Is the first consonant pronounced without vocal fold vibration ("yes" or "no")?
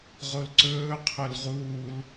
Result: no